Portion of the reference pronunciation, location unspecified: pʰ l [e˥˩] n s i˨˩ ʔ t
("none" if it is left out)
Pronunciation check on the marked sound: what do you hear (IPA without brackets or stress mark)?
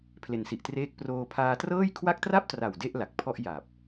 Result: e˨˩